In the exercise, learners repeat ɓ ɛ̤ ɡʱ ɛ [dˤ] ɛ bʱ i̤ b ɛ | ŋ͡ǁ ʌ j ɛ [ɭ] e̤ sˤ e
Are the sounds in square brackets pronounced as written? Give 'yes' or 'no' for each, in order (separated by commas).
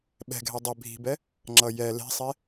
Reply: yes, no